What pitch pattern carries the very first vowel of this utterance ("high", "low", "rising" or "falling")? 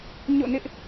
falling